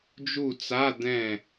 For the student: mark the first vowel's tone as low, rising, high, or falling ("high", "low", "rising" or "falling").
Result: falling